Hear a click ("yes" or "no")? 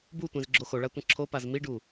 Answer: yes